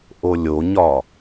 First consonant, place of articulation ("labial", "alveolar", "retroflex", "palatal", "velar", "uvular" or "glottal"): glottal